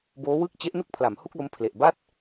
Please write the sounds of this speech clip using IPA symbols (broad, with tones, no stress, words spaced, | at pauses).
boː˦˥wɯ˥˩k̚ t͡ɕe˦˥ʔnu˥˩k̚pʰla˩˦m hu˥˩k̚lo˦˥mpʰle˨˩ʔba˥˩t̚